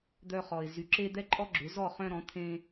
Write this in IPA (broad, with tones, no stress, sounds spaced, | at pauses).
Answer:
d̪ œ˧ χ ɔ˨ ɪ̯ z y˨ ǁ e˧ d̪ ɛ˦ ǃʼ ɔ˦ ɡ͡ǁ ʏ˨˦ z ɔ˦˨ χ œ̃˧ ɾ ɔ̃˨˦ t̪ʰ ẽ˧